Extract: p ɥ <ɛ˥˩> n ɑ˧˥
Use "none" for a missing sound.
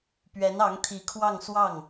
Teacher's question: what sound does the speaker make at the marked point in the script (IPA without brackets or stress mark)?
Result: ɛ˧˥